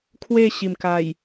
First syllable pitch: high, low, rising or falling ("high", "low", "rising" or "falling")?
falling